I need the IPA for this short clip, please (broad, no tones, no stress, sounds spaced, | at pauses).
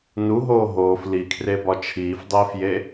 n u ɦ oː ɦ oː f l i kʰ r e b ɒ t͡ʃʰ iː f dˤ iː f j e